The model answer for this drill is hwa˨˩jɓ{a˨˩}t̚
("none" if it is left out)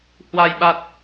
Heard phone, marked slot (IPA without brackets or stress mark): a˨˩